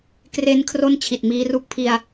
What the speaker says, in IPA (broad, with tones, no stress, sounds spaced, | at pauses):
k r e˦˥ n kʰ r o˥˩ n t͡ɕʰ i˨˩ t̚ m iː˦˥ r u˦˥ k̚ pʰ i˧ a̯